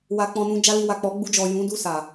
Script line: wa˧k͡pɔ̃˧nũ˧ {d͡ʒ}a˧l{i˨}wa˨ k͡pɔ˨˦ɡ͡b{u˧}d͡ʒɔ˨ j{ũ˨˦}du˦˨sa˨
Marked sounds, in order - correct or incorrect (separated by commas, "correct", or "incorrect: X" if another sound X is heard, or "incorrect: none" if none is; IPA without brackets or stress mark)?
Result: correct, correct, correct, correct